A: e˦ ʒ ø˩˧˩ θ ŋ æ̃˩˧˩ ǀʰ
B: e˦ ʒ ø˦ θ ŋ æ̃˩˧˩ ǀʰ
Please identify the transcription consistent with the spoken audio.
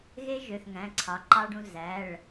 A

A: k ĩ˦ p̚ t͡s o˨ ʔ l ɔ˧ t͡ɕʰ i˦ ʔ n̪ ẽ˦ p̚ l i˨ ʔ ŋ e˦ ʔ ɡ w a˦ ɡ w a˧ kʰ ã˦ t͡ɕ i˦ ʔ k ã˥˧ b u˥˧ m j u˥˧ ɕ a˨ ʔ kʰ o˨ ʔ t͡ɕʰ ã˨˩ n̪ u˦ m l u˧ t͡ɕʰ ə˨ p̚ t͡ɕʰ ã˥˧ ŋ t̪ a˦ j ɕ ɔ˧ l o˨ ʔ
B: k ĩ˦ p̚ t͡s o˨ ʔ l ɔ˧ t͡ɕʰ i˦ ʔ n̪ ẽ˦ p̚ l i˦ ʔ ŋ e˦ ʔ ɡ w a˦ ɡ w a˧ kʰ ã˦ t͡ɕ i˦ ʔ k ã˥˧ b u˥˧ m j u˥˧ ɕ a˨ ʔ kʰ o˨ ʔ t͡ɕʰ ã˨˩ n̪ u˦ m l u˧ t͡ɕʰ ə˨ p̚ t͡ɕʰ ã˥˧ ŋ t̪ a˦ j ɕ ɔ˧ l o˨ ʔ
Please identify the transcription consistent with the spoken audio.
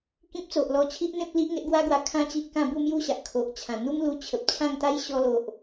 B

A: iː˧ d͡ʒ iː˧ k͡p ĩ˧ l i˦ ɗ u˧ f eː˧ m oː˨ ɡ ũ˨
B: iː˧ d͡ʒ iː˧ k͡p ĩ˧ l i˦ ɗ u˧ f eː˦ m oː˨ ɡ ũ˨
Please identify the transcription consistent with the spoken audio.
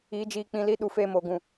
A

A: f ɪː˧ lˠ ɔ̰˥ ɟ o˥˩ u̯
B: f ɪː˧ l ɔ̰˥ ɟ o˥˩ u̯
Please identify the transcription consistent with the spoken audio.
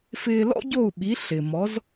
B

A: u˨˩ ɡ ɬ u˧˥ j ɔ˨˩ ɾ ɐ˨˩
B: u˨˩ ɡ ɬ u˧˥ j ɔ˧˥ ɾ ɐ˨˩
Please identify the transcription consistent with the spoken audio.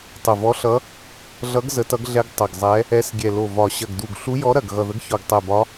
B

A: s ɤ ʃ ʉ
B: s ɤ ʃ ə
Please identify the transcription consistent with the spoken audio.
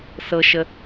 B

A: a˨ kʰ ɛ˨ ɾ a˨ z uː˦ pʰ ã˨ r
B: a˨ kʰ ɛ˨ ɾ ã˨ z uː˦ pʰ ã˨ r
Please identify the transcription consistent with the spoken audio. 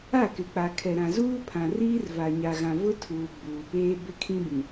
B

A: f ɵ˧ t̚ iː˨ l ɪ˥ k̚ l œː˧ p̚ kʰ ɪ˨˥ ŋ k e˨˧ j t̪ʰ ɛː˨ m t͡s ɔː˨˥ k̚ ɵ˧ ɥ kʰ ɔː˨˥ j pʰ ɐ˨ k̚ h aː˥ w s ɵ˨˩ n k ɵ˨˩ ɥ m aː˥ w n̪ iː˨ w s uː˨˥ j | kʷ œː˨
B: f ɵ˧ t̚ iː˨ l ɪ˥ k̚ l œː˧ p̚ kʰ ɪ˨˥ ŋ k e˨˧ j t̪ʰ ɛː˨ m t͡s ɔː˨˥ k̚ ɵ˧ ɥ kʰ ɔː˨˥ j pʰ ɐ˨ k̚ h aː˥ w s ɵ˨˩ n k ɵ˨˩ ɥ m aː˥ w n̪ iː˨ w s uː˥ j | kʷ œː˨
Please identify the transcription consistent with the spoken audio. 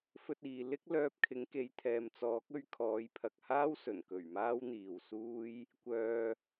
B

